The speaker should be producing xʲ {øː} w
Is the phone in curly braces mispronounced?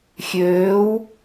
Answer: no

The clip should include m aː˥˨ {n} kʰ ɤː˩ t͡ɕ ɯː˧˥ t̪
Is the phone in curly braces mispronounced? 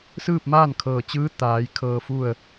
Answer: no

